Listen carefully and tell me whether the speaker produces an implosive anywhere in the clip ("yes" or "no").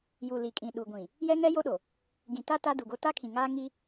yes